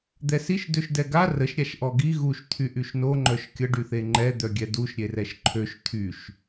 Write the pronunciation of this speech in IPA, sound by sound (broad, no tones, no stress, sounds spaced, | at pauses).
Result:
d̪ ɛ s i ʃ d ø ʃ d ɛ ɡ a r ə ʃ ɾʲ a ʃ ʔ ɔ ɡ i ɣ u ʃ t̪ʰ y ʔ y ʃ n o ŋ͡ǃ œ ʃ kʲ ə ɖ y θ e ŋ͡ǃ ɛ d̪ œ ɡʲ ɛ d u ʃ ɾʲ e r ɛ ʃ ǃʰ ø ʃ t̪ʰ y ʃ